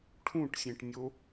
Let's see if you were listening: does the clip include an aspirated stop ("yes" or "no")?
yes